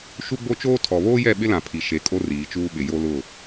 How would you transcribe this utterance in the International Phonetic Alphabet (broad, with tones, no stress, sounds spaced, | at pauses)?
ʃ u˦ ɡ͡b o˦ t͡ʃ oː˦ tʰ ɔ˨ β oː˦ j ɛ˦˨ ɓ ɪ˦ l ã˨ pʰ i˨ ʃ e˨˦ kʼ o˦ r iː˨˦ t͡ʃ uː˦ ɓ ɪ˨ j o˦ l ʊ˦˨